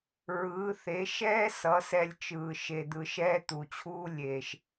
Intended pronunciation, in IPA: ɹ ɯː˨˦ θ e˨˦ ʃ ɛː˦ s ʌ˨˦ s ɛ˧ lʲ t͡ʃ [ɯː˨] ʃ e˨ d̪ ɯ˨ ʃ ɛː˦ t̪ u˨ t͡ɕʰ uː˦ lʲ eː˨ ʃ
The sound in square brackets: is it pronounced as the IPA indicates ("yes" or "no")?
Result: yes